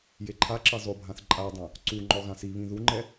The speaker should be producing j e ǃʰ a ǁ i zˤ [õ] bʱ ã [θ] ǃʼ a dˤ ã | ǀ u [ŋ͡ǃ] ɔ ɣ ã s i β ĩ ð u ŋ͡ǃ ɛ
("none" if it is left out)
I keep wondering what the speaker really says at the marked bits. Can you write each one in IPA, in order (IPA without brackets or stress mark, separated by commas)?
o, θ, ŋ͡ǃ